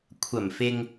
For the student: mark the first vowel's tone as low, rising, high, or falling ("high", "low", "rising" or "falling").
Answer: low